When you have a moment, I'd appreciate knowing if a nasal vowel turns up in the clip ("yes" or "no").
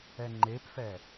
no